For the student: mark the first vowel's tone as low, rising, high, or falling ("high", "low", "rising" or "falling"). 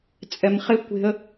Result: low